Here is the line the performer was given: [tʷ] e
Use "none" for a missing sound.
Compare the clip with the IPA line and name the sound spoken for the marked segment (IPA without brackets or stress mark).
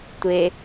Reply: tʷ